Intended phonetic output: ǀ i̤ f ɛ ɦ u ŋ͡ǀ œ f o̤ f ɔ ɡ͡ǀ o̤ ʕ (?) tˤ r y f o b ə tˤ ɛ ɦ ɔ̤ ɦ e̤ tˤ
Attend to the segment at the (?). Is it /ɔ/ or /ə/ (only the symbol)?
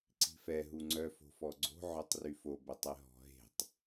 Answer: ɔ